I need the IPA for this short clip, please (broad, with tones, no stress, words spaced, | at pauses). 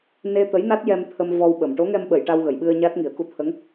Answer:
ne˧t̪ə˧˥jna˦˥t̚ jɛ˧mt̪ʰə˧m vɔ˧wɓə˨˩˨m ʈo˧˥ŋɛ˧mɓə˨˩˨j ʈa˧wɣə˨˩˨jɓɨ˧ə̯ ɲa˦˥t̚ŋi˨˩˦ə̯ku˧ t̪ʰə˧˥ŋ